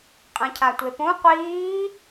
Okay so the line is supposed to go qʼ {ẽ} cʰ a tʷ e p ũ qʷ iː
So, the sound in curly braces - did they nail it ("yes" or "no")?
yes